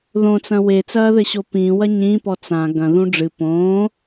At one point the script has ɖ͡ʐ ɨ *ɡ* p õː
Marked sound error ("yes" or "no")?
yes